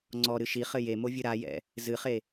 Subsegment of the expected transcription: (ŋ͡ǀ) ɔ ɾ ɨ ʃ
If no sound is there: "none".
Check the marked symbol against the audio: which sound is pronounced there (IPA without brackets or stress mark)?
ŋ͡ǀ